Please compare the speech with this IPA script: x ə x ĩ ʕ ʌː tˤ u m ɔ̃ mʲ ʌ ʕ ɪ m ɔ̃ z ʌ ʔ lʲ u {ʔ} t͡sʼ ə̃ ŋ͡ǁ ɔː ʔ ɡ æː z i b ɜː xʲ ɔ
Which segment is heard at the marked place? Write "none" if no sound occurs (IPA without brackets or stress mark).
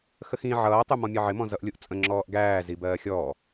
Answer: ʔ